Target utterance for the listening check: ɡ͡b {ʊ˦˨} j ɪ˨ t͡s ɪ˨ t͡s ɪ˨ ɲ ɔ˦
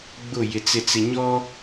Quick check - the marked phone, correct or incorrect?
correct